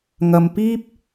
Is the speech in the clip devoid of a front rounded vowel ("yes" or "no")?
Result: yes